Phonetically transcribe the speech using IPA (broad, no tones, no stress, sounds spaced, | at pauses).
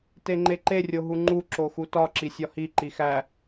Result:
t e ŋ͡ǃ e ǃ e rʲ o ɦ u ŋ͡ǃ u ǁ o x u t ɒ ǁ i sʲ ɒ h i ǃ i x æ